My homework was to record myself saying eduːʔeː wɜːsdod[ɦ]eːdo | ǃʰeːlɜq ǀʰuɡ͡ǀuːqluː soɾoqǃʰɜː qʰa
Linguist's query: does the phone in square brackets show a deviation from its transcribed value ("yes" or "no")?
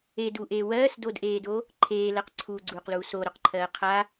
yes